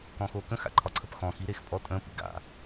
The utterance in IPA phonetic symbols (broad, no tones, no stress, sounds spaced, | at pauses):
k ɔ̃ x o k ə̃ x a̰ ǃʰ ɒ ǀʰ ə p x ɔ̃ x i ɾ e x pʼ ɔ tʼ ə̃ p ḭ ɡ a̰